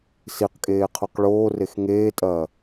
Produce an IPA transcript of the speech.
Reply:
siqkʼeː qʰoqɭoːrex ŋeːtʼɐː

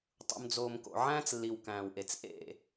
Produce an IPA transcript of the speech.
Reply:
tˤṵ˨md͡zoː˨mko̰˨ ʕæ̃ː˦t͡slːi˨w kæ̃ː˨wʔe˨t͡s ʔḛ˦˨

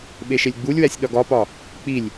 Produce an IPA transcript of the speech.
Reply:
ɓeʃelʲɡ͡bulʲwæsʲ ɗɒɡɒpɒ | k͡pilʲ

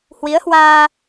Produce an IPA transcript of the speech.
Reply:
hwi˨˦ə̯hwaː˧

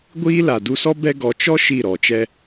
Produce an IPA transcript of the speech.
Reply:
ɡʷiː˦la˨ du˧sɔ˦ bɛ˦ ɡɔ˨t͡ʃɔ˦ ʃi˦˨ɾɔ˨t͡ʃɛ˦

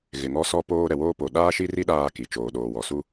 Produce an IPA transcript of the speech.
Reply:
ɣɪ˨ ŋɔ˦sɔ˦poː˦ ɾɛ˨woː˦ po˨ ɗaː˦ʃi˦ri˦ ɗaː˦ki˨ t͡ʃoː˨ɗoː˨wɔ˨ su˦

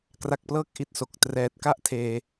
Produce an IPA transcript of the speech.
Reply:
kra˨˩k̚plɤː˦˥k̚ ʔi˦˥t̚so˨˩k̚ trɛː˨˩t̚ ka˥˩ʔtʰeː˧

